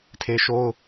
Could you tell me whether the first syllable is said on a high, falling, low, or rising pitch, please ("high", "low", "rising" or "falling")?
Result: high